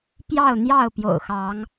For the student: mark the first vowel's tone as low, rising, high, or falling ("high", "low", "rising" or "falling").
falling